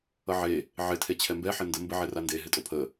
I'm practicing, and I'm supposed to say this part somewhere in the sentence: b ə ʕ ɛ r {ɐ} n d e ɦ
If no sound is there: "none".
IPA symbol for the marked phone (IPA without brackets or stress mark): a